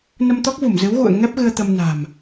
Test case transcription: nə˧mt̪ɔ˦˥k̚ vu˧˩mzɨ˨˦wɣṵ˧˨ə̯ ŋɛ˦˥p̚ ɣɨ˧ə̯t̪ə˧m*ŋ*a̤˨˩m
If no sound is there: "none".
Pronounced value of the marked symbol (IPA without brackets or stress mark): n